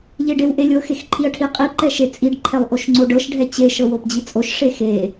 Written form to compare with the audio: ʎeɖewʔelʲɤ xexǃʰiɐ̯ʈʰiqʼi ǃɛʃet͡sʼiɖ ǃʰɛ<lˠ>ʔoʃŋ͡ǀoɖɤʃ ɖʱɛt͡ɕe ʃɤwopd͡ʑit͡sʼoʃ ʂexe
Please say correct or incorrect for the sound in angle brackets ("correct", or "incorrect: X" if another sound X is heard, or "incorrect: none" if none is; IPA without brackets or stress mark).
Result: correct